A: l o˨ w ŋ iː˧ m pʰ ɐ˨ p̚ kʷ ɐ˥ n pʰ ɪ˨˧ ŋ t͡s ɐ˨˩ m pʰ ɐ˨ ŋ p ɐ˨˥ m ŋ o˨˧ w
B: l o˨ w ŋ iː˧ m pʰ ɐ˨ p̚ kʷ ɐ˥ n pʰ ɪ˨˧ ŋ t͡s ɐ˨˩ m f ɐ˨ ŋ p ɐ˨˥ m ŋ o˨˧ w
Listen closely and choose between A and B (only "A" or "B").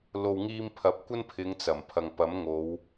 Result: A